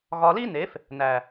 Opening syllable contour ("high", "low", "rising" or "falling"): low